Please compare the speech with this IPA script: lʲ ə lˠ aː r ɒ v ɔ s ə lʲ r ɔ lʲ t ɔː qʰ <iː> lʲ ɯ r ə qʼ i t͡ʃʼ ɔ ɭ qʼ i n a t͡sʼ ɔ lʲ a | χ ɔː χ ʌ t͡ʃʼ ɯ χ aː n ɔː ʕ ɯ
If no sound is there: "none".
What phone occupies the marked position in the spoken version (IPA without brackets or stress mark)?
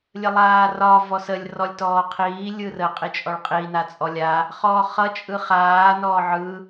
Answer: iː